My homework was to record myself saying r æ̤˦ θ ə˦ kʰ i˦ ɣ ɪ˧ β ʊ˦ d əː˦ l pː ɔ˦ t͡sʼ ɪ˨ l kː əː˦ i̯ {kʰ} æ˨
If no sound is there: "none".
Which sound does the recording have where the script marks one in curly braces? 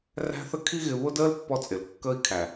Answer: kʰ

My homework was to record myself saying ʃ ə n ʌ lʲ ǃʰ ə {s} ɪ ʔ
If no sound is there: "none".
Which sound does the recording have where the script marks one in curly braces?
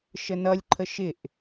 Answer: ʃ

